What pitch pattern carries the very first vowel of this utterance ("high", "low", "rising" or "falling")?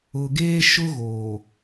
low